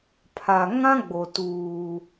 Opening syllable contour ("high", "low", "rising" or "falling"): low